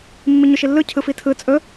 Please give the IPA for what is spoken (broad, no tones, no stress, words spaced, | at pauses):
mːiɲɵʃilːɯ cʰɯfitʰɯ t͡sʼɵ